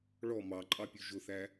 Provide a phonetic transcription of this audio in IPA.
ɭ ɔ m ɑ ǃʼ ɑ pʲ ʉ ʒ ʊ θ æ

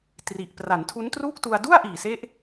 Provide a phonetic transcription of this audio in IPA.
t r i˨˩ ʔ p r a˩˦ n tʰ u˦˥ n t r uː˥˩ k̚ t u˧ a̯ d u˥˩ a̯ ʔ iː˨˩ s e˦˥ ʔ

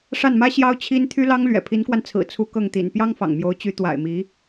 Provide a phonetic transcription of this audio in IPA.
ʂ a˥˩ n m ä˥ ɕ j ɑ˥ ʊ̯ t͡ɕʰ i˥ n t̪ʰ y˥ l ɑ˥ ŋ l ɥ ɛ̰˨˩ pʰ i˧˥ n k w a˧ n t͡sʰ ɹ̩˨˩ t͡sʰ u˧˥ k ɤ˥˩ ŋ t̪ ḭ˨˩ n p j ɑ˥ ŋ f ɑ̰˨˩ ŋ m j o˧˥ ʊ̯ t͡ɕ y˧˥ t̪ w a̰˨˩ ɪ̯ m i˧˥

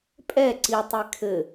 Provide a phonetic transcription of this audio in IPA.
pʼ ɛ ǀ i tˤ i kʰ ɘ

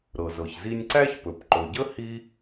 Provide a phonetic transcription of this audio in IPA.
ɾ ɤ˩ z ɤ˩ ç z i˦ nʲ ǀ æ˥ ç p ɵ˩ p ǃ ɵ˩ ɟ ə˥ h i˥

